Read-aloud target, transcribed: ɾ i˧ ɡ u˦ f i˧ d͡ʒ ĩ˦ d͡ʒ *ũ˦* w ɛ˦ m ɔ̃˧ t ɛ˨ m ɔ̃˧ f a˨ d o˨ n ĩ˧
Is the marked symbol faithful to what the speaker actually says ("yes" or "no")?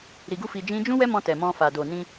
yes